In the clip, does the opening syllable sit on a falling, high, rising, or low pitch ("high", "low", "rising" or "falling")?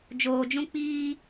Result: low